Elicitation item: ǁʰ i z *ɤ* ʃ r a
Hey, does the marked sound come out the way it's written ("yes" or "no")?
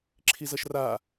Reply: yes